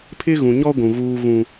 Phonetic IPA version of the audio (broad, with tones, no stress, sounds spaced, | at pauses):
pʰ ɪ˦ ɣ ũ˨ ɲ ɔ˦ ɡʷ ũ˨ ɣ uː˦ ɣ ũ˦